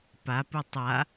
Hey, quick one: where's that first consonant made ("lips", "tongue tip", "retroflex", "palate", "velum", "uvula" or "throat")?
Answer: lips